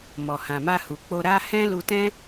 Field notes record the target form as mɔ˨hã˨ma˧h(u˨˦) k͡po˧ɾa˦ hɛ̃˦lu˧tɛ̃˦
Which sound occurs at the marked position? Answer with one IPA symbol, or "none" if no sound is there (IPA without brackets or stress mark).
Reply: u˨